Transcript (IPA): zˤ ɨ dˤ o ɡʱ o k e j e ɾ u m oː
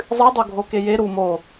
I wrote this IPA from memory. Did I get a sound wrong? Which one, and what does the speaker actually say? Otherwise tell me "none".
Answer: none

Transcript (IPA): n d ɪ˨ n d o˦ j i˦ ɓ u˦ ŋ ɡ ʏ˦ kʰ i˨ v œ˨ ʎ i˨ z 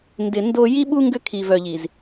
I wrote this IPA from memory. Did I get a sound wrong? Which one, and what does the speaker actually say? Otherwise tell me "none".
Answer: none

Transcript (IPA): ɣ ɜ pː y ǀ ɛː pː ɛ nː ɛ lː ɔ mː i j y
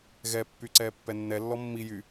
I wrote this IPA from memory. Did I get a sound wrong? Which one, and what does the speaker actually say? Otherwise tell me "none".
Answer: ɜ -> ɛ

